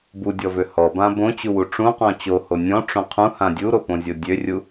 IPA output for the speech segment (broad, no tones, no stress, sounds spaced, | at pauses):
b u dʲ ɔ v ø h ɔ b ã b õ t͡ɕ u w u ʈ͡ʂ ũ q ɔ̃ t͡ɕ o h o nʲ ɔ̃ ʈ͡ʂ õ qʰ ũ h ã dʲ u ɾ o p õ zʲ o dʲ ø rʲ u